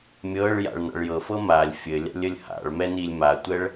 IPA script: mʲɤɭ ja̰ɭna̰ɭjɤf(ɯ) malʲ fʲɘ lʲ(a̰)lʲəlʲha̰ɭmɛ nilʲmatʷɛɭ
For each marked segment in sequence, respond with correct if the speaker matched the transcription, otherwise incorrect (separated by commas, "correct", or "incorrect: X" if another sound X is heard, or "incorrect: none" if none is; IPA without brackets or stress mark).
incorrect: ɤ, correct